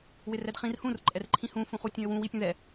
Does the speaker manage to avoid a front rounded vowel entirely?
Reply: no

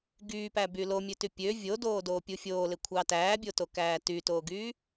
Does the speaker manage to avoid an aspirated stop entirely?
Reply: no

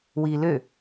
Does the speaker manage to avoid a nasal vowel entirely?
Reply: yes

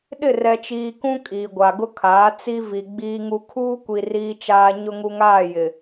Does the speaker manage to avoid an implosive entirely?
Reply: no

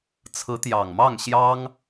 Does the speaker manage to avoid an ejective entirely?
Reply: yes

